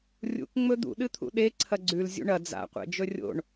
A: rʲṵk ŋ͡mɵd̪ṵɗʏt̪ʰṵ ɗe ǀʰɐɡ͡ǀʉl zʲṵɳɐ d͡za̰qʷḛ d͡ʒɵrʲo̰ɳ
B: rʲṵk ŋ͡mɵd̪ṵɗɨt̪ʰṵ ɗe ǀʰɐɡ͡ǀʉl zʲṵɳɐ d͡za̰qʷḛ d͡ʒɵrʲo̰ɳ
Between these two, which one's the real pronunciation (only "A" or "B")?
B